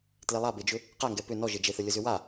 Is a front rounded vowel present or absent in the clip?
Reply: present